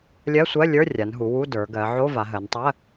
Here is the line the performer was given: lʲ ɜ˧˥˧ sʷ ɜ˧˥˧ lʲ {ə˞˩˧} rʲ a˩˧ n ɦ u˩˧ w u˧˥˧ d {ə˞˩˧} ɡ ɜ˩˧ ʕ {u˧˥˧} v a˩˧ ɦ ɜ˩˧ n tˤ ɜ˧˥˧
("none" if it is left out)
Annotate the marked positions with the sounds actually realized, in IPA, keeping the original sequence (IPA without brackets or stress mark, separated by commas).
ə˞˧˥˧, ə˞˩˧, o˧˥˧